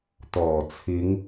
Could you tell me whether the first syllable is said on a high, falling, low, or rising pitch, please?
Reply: low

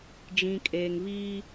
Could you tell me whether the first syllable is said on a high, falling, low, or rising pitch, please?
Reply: low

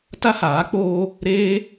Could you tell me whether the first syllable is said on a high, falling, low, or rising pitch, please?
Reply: high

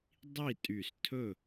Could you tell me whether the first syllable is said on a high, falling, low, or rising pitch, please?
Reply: falling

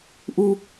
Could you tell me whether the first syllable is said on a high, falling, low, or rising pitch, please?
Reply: high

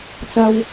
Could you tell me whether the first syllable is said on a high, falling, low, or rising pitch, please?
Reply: high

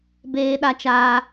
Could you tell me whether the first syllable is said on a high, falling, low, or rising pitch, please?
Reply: high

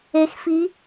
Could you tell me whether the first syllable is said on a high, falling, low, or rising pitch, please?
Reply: rising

